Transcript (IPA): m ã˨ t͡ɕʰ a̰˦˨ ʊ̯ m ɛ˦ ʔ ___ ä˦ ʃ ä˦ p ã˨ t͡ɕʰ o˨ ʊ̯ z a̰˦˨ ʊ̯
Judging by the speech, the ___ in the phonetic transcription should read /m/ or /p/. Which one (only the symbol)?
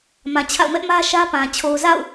m